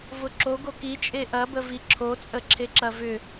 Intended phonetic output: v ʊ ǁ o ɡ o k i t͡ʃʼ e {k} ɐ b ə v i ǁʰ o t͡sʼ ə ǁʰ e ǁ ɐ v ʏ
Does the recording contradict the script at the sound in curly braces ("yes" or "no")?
yes